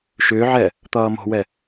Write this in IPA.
ʃ ʏː ʕ ɛ | t̪ ʌː m o̤ w ɛ

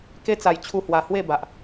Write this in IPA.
k e˦ t͡s a˨˩ j t͡ɕʰ u˧ h w a˨˩ h w e˥˧ b a˨ ʔ

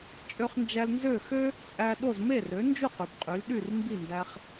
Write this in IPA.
t͡ʃʼ ø˧ χ n d͡ʒ æ˧ l n z ø˥˩ x ø˥ | t͡sʼ æ˧ ɗ o˥˩ z m e˥˩ r ø˩˥ n d͡ʒ u˥˩ q y˩ b qʼ y˩˥ l ɗ y˥˩ r m b i˥˩ n d æ˧ χ

